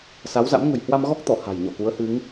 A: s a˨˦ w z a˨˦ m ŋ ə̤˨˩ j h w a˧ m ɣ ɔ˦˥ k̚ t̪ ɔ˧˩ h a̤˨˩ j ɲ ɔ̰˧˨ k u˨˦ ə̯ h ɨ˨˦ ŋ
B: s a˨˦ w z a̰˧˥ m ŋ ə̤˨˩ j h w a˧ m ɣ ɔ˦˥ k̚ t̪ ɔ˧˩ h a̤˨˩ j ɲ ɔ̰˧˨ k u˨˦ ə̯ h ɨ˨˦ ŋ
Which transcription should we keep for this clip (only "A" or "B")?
B